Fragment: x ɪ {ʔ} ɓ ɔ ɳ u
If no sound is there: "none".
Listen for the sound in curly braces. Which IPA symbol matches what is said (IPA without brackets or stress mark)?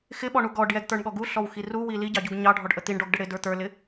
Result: none